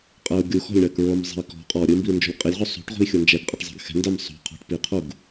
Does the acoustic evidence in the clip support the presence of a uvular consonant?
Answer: yes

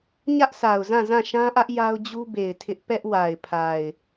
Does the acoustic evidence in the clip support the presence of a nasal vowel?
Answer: yes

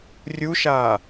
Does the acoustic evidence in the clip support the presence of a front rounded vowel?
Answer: no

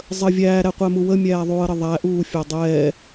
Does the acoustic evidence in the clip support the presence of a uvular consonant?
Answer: yes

